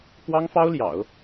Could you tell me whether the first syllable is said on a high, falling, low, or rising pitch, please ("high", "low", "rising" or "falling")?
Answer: high